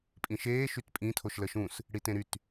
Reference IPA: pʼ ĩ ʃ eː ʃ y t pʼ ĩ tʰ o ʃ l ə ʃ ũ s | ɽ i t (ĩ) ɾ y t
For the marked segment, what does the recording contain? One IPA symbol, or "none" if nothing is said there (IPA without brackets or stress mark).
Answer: ẽ